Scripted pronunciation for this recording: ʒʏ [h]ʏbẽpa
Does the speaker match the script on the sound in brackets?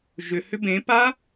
yes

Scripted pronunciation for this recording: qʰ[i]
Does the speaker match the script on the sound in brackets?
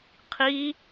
yes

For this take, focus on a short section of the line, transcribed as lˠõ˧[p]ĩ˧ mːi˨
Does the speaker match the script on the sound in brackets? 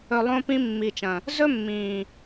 yes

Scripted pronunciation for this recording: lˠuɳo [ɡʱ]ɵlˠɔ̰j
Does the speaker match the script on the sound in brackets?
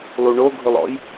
yes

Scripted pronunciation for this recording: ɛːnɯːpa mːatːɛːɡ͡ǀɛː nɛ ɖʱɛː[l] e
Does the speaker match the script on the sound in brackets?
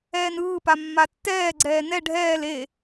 yes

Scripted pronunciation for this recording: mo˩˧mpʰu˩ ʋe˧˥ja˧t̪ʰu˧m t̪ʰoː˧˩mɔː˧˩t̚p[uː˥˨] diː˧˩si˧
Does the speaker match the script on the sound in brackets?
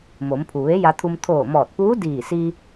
no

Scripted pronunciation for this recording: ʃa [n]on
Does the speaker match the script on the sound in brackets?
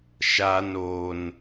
yes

